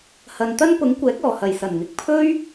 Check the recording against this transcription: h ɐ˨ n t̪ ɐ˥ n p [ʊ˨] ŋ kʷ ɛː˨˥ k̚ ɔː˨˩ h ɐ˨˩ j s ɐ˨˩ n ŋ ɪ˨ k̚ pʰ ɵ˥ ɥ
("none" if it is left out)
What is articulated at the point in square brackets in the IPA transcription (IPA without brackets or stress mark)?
ʊ˨˥